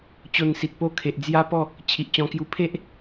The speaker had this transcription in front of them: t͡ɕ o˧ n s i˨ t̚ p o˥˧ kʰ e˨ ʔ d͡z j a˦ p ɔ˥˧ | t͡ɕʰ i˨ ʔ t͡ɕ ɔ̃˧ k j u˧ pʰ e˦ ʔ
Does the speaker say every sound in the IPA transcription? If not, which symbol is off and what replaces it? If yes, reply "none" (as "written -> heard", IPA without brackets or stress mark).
none